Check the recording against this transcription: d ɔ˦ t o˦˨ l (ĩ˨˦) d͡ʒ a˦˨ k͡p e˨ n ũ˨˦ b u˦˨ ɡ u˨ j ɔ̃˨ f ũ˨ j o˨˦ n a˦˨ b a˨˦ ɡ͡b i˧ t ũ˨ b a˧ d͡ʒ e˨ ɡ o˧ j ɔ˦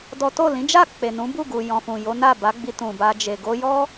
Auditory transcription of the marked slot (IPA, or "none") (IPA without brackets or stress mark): ĩ˨˦